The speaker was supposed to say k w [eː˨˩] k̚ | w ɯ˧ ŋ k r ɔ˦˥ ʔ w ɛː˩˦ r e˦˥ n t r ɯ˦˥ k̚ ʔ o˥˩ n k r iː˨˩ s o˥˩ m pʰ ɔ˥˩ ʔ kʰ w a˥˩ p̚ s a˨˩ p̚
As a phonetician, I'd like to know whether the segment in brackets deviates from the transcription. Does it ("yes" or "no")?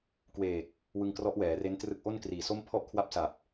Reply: no